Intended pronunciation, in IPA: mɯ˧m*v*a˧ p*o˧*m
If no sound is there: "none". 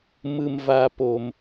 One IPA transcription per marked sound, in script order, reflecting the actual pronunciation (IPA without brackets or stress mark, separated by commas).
v, o˧